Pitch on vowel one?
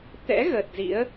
rising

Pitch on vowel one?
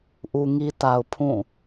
low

